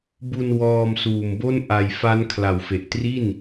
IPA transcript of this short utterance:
b u˧ n w ɔː˧ m s uː˨˩ m b o˥˩ n ʔ a˧ j f a˦˥ n kʰ l a˨˩ w f e˨˩ ʔ t r i˥˩ n

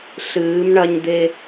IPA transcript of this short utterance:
ɬ ɨː˧˥ m ɳ ɐ˥ ɲ d̪ e˥

